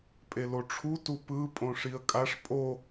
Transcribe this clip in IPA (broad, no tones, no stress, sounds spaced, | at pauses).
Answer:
pʼ e l o ʈ͡ʂʰ u t u p ɯ pʼ õ ʂ i ə̯ kʼ a ʂ pʼ o